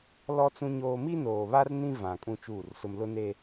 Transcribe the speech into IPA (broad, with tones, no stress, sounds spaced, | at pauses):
l ɔ˦ t͡s ũ˦ ɲ oː˦ m i˦ n oː˨ β a˦ r n ĩ˦ v ã˨ kʼ ũ˦ t͡ʃ uː˦˨ r s ʊ˦ m l ʊ˦ n e˦